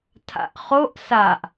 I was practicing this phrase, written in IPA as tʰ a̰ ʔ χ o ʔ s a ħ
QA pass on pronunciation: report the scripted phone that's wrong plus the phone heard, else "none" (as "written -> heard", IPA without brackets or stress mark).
ħ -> ʔ